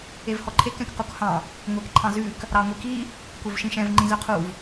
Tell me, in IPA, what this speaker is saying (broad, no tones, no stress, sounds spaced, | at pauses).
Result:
e v h ɔ ǃʰ e k ɛ̃ k q u k h ɑ̃ | ŋʷ e k ǃʰ ɑ̃ z ʉ k | ɾ ɑ ŋʷ i k i | kʷ œ v ʃ ĩ ʃ ɛ̃ v ŋ͡ǃ ĩ z œ qʰ u v